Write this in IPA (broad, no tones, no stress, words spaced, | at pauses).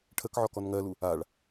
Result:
ʈʰəkʕɔkɔn ŋɜlu | aɭ